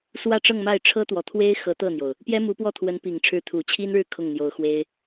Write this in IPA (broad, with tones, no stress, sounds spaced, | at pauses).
s w ä˥˧ ʈ͡ʂ ɤ˥˧ ŋ m a˥˩ ɪ̯ ʈ͡ʂʰ ɤ˥ t̪ w ɔ˨˩ t̪ʰ w e˥ ɪ̯ x ɤ˧˥ t̪ ɤ˥˩ n̪ j o˩ ʊ̯ | p j ɛ˥ m u˧˥ p w ɔ˥˩ t̪ʰ w ə˧˥ n p i˨˩ ŋ ʈ͡ʂʰ ɻ̩˧˥ t̪ʰ u˨˩ t͡ɕʰ i˥ n ɻ ɻ̩˥˧ kʰ ʊ˥˩ ŋ n̪ j o˧˥ ʊ̯ x w e˥ ɪ̯